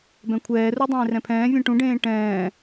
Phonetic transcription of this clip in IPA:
b ɛ̃ kʷʰ ɛː r u dˤ ẽː r ɛ̃ pʰ ɛ̃ː vʲ ɛ̃ ʈ ũ ɖ ẽː ʈ ɛ̃ː

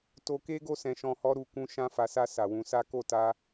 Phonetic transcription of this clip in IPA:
t o˧ k e˦ ɡ o˦˨ s ɛ̃˧ ʃ ɔ̃˧ h ɔ˦ ɾ u˦˨ k ũ˧ ʃ ã˧ f a˨ s a˧ s a˨ w ũ˧ s a˦ k o˦˨ t a˧

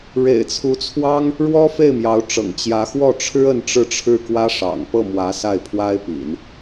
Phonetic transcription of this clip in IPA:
ɻ ḛ˨˩ ɪ̯ t͡sʰ u˧˥ t͡sʰ w ɑ˥ ŋ | ɻ w ɔ˥ f e˥˩ ɪ̯ m j ɑ˧˥ ʊ̯ ʈ͡ʂ ɤ̰˨˩ ŋ t͡ɕ j ä˧˥ x w ɔ˥˩ ʈ͡ʂʰ ɻ̩˥ ə˥˧ n ʈ͡ʂ ɻ̩˥˧ ʈ͡ʂʰ ɻ̩˥˩ k w ä˥ ʂ ɑ̰˨˩ ŋ p ɤ˥˩ m w ä˧˥ s a˥˩ ɪ̯ pʰ w a˥ ɪ̯ p ḭ˨˩˦ n

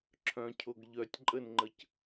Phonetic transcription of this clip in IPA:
ǁʰ œ̃ cʰ o ɡ ʎ œ tʲ ǃʼ ə n ŋ͡ǃ ə c

